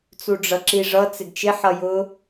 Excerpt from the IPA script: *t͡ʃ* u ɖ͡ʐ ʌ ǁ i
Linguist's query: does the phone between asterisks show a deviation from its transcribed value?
yes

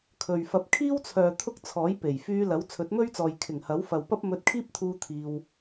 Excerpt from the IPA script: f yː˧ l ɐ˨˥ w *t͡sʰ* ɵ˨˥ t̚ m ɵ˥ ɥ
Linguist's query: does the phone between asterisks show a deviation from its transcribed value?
no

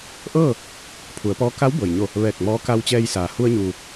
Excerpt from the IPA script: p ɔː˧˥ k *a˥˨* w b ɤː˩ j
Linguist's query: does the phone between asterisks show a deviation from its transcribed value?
yes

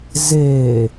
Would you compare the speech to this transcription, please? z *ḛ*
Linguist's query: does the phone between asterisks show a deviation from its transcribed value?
yes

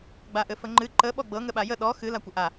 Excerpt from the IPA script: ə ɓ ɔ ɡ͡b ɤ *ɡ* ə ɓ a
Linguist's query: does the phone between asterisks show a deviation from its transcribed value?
yes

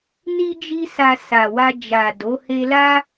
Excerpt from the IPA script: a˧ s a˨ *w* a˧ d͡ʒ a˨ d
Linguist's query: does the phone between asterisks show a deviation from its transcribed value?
no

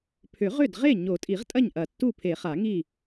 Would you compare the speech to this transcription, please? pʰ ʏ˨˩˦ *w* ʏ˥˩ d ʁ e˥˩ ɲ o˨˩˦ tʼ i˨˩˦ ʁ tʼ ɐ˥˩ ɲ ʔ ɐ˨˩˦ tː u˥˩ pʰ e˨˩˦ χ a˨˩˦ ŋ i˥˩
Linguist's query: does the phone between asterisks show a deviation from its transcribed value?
yes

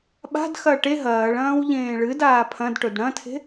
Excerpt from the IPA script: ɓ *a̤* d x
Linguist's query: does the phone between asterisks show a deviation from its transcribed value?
no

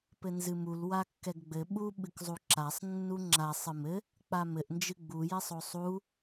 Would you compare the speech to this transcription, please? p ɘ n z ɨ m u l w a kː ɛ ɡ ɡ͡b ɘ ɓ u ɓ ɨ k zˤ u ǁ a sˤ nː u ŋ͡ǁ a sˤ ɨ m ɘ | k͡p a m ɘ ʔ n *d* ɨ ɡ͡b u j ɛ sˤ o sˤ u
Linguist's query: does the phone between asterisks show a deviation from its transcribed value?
yes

